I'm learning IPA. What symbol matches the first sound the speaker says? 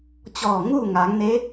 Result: t͡ɕ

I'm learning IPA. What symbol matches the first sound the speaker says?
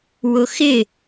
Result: w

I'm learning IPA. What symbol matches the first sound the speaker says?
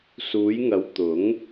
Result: s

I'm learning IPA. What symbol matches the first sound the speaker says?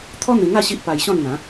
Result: t̪ʰ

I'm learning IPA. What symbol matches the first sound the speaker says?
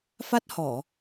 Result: f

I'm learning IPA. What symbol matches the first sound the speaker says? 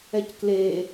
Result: ɛ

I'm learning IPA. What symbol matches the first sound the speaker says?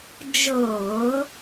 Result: d͡ʒ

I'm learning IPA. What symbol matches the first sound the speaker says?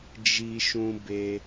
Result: d͡ʒ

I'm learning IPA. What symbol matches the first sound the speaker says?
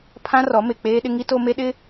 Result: pʰ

